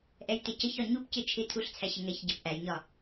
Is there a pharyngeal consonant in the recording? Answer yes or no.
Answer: no